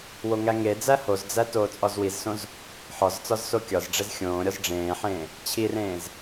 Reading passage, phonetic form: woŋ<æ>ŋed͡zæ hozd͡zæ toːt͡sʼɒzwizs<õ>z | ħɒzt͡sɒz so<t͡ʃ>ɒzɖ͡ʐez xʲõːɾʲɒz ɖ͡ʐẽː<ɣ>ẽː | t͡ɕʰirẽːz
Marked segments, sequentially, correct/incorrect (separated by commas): correct, correct, incorrect, incorrect